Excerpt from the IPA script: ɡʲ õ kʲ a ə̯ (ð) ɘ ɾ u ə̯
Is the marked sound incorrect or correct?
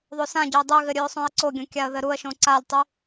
correct